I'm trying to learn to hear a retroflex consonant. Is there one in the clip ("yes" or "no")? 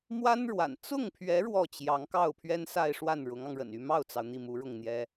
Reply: yes